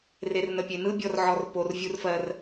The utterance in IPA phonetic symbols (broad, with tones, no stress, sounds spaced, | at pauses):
r e˨ r n ə˨ pʲ e˨ n ɯ˦ bʲ ɔ˨ r ʕ ɔ˨ r p o˨ r vʲ u˦ r f ɜ˦ r